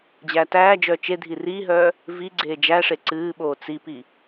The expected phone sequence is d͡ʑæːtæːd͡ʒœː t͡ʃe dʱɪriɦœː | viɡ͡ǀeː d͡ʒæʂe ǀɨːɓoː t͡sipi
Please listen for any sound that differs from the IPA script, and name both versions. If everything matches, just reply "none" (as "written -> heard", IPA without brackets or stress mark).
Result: ɪ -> i